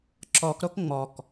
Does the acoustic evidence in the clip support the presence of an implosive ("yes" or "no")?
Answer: no